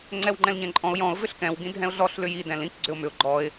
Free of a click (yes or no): no